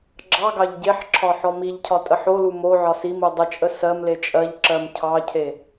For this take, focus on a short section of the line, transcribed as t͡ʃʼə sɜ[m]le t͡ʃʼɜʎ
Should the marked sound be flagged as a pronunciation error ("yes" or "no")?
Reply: no